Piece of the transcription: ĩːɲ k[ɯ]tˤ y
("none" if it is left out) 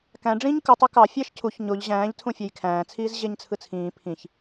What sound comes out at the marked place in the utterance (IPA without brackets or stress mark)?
ɯ